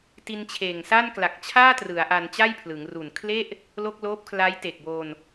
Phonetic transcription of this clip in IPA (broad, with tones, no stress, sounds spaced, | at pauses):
t i˧ n t͡ɕʰ eː˨˩ ŋ s a˥˩ n k l a˨˩ k̚ t͡ɕʰ aː˥˩ t r ɯ˩˦ a̯ ʔ a˧ n t͡ɕ a˥˩ j pʰ l ɯ˩˦ ŋ r u˨˩ n kʰ l e˥˩ ʔ | l o˥˩ k̚ l oː˦˥ p̚ kʰ l a˦˥ j t e˨˩ k̚ b oː˧ n